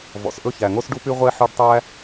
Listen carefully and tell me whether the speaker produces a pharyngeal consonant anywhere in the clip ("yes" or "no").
yes